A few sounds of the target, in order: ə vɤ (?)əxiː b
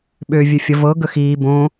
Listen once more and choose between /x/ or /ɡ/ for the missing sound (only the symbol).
ɡ